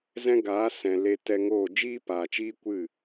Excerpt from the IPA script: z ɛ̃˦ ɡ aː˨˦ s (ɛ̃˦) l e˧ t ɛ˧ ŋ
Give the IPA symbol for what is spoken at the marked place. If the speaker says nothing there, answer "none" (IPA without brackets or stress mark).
ɛ̃˨